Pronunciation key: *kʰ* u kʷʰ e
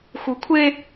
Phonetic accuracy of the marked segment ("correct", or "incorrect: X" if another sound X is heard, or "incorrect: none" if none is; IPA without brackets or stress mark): incorrect: x